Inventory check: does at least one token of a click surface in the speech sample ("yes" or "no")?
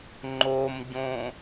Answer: yes